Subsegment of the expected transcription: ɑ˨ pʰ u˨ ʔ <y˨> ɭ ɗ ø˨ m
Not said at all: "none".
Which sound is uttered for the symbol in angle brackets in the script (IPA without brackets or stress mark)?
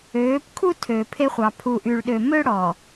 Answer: y˨